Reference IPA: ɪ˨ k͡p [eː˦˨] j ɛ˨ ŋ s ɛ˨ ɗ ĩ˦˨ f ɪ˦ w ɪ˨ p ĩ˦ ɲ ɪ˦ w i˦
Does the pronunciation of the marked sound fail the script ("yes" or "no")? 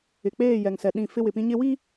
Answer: no